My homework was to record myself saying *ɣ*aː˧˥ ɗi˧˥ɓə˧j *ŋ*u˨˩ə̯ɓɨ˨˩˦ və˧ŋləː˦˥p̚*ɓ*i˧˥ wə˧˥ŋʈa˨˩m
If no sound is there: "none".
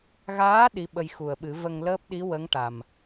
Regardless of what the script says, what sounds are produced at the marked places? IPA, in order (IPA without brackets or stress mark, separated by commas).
ɣ, x, ɗ